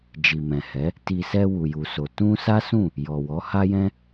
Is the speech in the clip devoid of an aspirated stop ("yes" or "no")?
yes